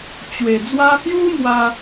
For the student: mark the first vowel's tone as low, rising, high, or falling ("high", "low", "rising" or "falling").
low